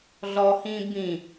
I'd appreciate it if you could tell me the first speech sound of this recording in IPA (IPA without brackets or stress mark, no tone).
ɮ